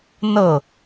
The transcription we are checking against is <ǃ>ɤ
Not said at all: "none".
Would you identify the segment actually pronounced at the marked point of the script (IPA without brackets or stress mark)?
n